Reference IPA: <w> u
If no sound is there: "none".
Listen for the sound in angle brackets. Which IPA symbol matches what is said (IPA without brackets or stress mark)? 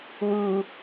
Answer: w